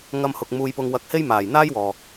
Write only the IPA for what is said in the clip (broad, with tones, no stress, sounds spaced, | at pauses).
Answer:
ŋ ɐ˧ m h ʊ˨ k̚ m uː˧ j p ʊ˧ ŋ w ɐ˧ k̚ h e˥ j m aː˨˩ j n̪ aː˥ j w ɔː˨